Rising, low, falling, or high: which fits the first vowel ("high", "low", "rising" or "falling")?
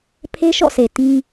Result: high